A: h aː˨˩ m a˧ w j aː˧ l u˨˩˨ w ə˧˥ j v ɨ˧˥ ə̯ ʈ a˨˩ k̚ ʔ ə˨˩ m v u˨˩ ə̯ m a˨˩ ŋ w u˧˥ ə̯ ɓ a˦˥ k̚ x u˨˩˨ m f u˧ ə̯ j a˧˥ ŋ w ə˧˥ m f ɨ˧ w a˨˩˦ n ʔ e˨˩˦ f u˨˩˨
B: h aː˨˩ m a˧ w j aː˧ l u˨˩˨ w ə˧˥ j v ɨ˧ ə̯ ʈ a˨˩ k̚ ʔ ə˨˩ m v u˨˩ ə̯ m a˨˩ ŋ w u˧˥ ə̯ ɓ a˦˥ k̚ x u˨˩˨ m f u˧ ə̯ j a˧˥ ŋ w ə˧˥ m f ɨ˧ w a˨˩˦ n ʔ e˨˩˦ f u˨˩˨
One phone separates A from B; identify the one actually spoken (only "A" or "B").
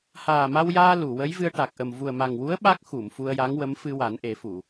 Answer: B